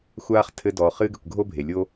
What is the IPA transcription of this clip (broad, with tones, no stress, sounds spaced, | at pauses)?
xʷ aː˧ χ tʰ ɘ˧ d ɔː˩ χ ɨː˧ ɡ ɘ˩ kʷ ɡʱ o˧ bʱ e˩ lʲ o˧